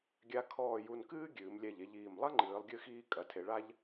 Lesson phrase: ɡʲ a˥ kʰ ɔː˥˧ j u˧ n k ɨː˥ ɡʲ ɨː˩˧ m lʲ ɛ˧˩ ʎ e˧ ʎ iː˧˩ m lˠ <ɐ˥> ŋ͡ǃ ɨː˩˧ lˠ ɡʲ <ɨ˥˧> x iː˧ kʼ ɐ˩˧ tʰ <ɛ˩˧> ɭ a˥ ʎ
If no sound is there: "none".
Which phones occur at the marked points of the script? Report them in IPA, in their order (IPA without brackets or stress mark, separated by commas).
ɐ˥, ɨ˧, e˩˧